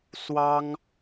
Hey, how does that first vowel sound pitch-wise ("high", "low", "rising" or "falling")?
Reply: high